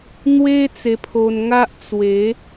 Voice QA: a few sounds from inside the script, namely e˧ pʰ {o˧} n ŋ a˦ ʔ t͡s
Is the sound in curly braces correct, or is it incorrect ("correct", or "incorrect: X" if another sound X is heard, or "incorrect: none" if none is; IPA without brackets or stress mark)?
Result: correct